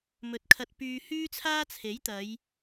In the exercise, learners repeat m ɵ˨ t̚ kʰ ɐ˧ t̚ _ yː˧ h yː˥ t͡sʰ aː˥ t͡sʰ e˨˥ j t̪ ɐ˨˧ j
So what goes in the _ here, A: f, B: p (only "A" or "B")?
B